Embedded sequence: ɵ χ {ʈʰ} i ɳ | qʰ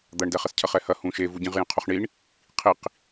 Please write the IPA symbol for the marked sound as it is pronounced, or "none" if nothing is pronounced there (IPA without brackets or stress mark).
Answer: ɳ